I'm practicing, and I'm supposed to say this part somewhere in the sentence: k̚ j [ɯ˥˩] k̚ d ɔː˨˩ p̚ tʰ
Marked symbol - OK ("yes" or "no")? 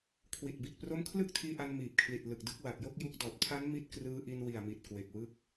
no